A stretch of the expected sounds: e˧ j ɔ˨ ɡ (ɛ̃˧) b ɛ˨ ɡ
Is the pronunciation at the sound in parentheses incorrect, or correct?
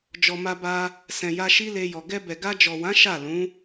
incorrect